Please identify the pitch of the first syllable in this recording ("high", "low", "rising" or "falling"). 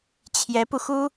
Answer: rising